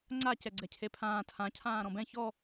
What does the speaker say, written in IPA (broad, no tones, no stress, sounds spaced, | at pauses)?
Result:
ŋ͡ǀ a c ɛ ɡ͡ǀ ɛ cʰ e pʰ ãː tʰ ã cʰ ãː ɾ ɔ̃ b ɛ̃ ç ɔ